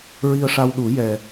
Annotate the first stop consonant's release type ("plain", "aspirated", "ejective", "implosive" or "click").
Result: implosive